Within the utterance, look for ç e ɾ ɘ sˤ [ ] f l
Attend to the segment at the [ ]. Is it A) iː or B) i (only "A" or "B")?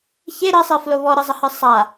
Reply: B